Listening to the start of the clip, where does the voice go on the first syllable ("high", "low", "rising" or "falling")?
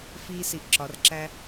high